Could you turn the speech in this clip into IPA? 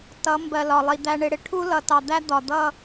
tʌ˨˦mbɜ˨lɒ˨lˠi˨ d̪æ˨ɳɪ˨ɽɪ˨ʈʰu˦ lʌ˨tɑ˨d̪æ˦ d̪ɒ˨d̪ʌ˦

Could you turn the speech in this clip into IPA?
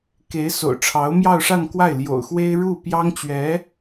ke˧˥ɪ̯ so̰˨˩ʊ̯ʈ͡ʂʰɑ˧˥ʊ̯ mjɑ˥˧ʊ̯ʂa˥˧nkwa˥˩ɪ̯ ljo̰˨˩ʊ̯xwe˥ɪ̯ɻu˥˩ pjɑ˥ŋt͡ɕɥɛ˧˥

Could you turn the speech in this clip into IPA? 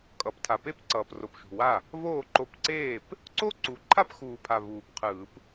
kʼʌ˨˩˦p tʰa˨˩pe˥˧pǀʌː˨˩pro˨˩p ʃṳ˨˩wa˥˩ | voː˥˩ǃo˧pǀeː˥˩p | ǀo˥˧ǀu˨˩ ǃʰa˥˧pxuː˨˩pʰa˨˩ vuː˨˩pqʰɯː˨˩˦p

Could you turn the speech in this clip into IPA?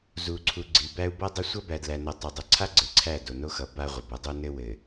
zu˨ǀʰu˨ ɡ͡ǀi˨bæ˦u̯ bʌ˦dˤɐ˦ sʷʌ˦bæ˨dlæ˨nʌ˨ tˤʌ˨dˤɐ˨ǀʰa˦ ɡ͡ǀɘ˨ǀʰæ˦˨ do˨no˦xʌ˨ ba˦ʁʷɘ˨b ɐ˦dˤo˦nɘ˦ wɘ˨

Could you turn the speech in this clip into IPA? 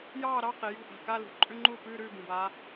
jɑː˥˨ ɾɑ˧˥˧ qi˩jṳ˧˥˧ ʔa̤˩ka˧˥˧lṳ˩˧˩ ǃʼʉ˧˥˧ŋ͡ǃuː˥˨ pʉː˧˥˧ɾʉː˥˨ bũ˩baː˨˦

